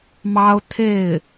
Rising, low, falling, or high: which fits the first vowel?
high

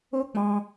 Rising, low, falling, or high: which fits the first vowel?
high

